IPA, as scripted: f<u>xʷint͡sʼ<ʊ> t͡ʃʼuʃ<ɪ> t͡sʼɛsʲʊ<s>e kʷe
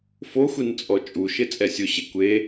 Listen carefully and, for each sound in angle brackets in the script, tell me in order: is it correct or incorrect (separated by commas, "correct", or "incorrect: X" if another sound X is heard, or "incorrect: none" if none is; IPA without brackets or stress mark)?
incorrect: o, incorrect: ɔ, correct, incorrect: ɕ